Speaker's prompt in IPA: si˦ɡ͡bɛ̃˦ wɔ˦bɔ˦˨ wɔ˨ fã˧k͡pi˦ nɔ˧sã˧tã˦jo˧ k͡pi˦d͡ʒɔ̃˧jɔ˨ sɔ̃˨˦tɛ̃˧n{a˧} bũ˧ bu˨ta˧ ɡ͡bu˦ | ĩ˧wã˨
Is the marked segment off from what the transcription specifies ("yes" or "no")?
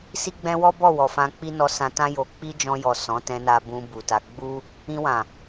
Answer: no